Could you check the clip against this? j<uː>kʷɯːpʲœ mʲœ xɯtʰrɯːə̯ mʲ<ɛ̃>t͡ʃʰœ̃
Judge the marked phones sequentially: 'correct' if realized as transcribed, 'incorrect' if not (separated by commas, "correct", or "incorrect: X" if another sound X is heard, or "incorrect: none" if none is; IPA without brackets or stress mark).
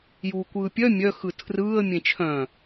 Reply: correct, incorrect: ẽ